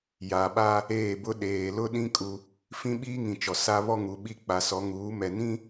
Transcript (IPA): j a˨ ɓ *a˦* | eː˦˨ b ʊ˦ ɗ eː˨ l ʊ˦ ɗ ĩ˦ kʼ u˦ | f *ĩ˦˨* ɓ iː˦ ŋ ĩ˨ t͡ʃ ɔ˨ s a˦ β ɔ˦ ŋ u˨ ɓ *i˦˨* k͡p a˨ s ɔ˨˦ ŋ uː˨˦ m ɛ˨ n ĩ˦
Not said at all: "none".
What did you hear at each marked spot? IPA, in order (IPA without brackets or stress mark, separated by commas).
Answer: a˦, ĩ˦, i˦˨